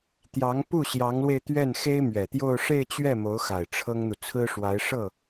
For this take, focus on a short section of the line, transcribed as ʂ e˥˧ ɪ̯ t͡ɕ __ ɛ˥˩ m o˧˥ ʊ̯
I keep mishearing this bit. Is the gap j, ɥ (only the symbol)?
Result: ɥ